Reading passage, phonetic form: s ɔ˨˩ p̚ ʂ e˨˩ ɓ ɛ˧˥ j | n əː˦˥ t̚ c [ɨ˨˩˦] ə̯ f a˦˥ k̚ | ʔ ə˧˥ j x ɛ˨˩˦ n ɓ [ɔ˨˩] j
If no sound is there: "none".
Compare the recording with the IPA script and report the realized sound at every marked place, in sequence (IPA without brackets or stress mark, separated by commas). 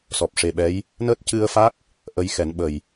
ɨ˧, ə˨˩